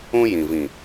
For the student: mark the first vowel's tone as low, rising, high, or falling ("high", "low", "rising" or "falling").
high